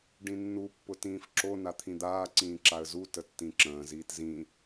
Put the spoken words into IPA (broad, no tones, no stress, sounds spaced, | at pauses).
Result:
ɖ ĩ nː u pː ʊ t ĩː f ǁ o n a t̪ʰ ĩ d̪ aː ǀ ĩː ǁ a ə̯ z u t ə tː ĩ ǁ ə̃ː z iː t z ĩ